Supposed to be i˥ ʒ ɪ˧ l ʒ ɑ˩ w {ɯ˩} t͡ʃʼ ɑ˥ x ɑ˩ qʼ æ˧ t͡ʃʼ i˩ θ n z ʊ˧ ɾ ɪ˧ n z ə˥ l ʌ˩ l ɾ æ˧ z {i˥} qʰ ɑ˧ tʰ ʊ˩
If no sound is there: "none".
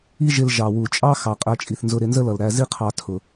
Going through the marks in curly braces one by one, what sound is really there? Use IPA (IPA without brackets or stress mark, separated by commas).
u˩, i˥